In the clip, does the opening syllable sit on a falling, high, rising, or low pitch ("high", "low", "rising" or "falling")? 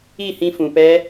falling